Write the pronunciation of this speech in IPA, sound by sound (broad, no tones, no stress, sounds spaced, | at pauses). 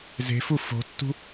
z e̤ f u f o̤ tː ṳ